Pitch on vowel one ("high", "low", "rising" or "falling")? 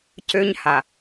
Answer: high